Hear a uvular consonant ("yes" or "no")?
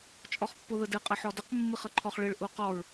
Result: yes